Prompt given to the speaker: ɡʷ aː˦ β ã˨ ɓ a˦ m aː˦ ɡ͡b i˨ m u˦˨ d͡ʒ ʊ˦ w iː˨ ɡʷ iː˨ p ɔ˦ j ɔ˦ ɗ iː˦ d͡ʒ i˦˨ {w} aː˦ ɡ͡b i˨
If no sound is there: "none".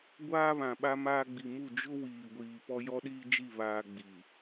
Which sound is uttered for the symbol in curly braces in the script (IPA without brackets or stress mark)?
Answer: β